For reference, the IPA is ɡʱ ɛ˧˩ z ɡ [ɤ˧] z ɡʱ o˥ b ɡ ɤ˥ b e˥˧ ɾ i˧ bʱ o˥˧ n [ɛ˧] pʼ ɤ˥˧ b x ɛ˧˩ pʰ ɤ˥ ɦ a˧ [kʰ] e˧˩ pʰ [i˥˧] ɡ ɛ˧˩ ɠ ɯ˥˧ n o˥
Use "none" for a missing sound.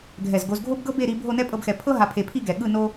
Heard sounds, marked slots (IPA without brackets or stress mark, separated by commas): o˧, ɛ˥, pʰ, i˥˧